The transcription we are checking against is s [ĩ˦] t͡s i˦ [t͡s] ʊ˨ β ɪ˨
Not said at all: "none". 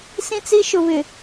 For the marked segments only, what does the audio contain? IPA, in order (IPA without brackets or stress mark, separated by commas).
ĩ˦, ʃ